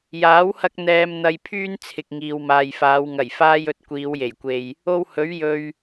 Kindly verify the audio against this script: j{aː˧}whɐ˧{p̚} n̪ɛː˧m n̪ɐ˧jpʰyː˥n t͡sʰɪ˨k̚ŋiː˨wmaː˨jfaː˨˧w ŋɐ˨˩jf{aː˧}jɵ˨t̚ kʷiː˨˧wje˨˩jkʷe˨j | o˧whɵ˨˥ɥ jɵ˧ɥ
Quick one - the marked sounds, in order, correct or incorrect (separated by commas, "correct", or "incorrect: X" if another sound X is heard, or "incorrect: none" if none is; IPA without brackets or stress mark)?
incorrect: aː˨˥, incorrect: k̚, correct